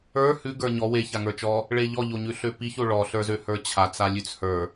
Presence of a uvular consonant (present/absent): absent